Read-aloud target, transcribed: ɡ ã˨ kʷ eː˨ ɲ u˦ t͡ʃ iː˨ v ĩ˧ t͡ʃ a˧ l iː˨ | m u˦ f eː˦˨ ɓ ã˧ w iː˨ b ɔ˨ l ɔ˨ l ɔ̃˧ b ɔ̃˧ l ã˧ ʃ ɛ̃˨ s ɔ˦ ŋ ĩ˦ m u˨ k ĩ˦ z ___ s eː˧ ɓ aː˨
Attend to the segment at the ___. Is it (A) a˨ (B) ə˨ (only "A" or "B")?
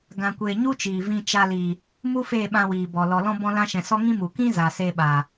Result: A